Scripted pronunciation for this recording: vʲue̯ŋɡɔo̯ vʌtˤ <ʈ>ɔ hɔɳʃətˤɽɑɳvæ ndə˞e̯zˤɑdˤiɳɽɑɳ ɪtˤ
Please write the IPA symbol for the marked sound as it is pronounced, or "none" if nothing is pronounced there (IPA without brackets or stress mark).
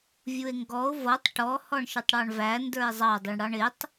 ʈ